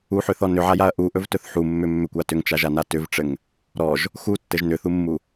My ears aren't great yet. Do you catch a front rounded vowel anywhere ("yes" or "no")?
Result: yes